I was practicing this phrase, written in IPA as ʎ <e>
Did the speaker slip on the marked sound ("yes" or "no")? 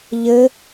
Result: yes